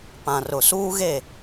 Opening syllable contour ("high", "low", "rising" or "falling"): low